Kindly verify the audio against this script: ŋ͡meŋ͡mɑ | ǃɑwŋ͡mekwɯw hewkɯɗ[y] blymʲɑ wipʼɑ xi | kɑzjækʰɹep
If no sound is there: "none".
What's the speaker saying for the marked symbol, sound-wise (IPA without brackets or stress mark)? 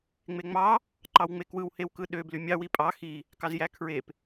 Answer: ø